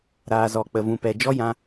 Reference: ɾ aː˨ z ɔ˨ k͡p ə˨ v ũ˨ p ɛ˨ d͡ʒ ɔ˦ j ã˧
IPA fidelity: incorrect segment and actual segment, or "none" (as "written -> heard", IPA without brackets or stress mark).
none